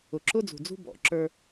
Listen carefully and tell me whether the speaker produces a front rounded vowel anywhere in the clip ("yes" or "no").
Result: no